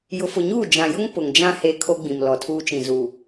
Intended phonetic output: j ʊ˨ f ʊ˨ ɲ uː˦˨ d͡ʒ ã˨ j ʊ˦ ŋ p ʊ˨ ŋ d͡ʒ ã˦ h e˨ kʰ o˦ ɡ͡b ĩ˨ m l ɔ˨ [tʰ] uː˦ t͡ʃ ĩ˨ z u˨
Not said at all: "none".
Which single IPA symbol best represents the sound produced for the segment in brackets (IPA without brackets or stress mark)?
tʰ